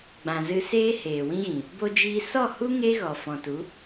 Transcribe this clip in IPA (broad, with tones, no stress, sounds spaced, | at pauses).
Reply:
ɡ͡b ã˨ z ɨ˧ s eː˦ h eː˨ w ĩ˦ ɣ ĩ˨ | b o˧ d͡ʒ iː˧ s ɔ˦˨ h u˦ ŋ e˦ ɣ ɔ˨ f ɔ̃˨ t u˨˦